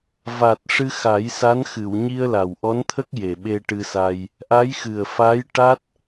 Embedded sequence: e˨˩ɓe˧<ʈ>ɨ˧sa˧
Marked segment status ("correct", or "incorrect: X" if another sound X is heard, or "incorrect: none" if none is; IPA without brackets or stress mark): correct